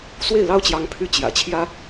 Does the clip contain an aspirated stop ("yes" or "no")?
yes